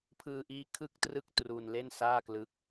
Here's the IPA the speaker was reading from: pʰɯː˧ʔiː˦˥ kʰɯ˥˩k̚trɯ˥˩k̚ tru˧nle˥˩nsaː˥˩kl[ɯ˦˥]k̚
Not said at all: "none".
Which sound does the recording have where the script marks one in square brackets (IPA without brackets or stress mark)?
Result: ɯ˦˥